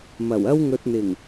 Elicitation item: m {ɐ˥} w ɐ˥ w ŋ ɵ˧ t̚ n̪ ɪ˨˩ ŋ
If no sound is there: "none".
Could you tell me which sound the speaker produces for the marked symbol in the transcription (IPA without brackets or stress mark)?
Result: ɐ˨˩